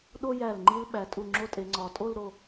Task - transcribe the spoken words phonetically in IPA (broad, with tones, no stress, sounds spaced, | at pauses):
ɗ o˥ j æ˧˩ l ŋ͡ǃ i˥ l ɓ æ˩˧ tʼ u˧˩ ŋ͡ǁ o˥ tʼ e˩˧ ŋ͡ǀ ɒ˩˧ tʼ o˥˧ l ɾ o˧˩